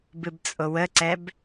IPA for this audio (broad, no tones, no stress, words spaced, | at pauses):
bɨbt͡sʼowəǀɛb